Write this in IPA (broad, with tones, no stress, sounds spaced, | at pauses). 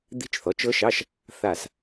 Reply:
d̪ i̤˦˥ t͡ʃ θ ɔ˩˥ t͡ʃ ɤ˦˥ ʃ ɑ˧˥˧ ʃ | θ a˧˩ s